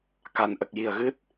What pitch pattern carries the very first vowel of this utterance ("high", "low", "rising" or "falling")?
low